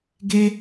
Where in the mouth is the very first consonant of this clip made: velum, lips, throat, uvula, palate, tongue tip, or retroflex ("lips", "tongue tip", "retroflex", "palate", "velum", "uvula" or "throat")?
velum